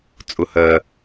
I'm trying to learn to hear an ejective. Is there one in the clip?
yes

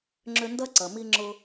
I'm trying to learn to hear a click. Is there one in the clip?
yes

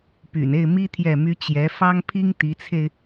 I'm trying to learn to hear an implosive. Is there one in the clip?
no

